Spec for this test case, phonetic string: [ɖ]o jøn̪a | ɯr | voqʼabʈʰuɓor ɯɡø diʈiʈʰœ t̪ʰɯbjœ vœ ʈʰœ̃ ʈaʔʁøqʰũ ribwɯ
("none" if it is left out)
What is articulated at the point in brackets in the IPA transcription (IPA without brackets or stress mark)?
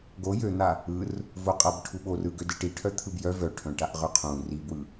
ɡ